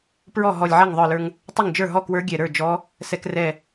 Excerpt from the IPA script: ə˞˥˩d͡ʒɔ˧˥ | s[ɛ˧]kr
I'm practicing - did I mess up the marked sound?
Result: no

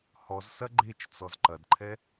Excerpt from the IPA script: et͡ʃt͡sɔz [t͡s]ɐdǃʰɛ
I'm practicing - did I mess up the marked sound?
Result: yes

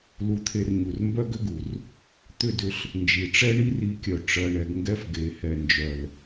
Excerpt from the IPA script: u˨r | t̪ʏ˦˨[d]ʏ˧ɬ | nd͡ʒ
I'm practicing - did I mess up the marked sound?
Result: no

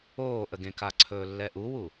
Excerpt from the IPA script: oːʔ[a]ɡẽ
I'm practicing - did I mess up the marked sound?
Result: yes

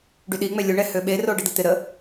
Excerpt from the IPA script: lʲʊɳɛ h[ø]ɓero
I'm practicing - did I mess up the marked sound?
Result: no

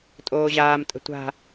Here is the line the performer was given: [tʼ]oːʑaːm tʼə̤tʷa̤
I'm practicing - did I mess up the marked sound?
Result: no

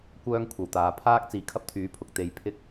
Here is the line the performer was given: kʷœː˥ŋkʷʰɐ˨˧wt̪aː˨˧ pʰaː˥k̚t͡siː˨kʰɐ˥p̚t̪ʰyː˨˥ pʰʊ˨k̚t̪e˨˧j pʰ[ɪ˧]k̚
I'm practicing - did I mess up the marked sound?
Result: yes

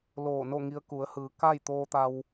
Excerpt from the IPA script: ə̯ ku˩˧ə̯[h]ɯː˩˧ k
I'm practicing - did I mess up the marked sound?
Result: no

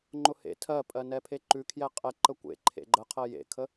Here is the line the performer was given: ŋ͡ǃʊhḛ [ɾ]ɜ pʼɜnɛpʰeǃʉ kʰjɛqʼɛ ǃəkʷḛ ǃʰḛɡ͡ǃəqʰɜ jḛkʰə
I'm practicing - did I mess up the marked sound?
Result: yes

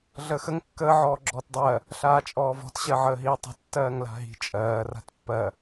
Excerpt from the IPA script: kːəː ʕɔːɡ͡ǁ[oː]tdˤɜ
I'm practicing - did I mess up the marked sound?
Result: yes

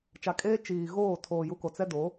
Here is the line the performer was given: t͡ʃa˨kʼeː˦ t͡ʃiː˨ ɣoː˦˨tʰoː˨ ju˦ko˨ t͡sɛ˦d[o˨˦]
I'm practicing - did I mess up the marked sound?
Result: no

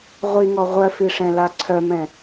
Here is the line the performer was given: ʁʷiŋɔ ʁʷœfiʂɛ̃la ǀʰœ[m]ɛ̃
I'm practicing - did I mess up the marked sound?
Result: no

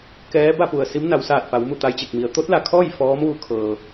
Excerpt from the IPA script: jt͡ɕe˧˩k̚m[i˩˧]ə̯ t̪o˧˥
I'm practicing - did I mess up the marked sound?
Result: no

